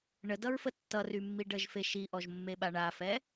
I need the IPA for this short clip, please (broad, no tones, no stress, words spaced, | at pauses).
ɳədʌɹfə tːʌrymːi ɖəʒfe ʃiʔɔʒmːeɓa ɳafɛ